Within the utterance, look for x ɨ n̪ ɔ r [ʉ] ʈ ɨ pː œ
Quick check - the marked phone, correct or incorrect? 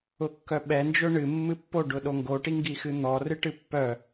incorrect